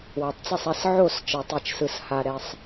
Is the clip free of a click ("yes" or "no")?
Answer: yes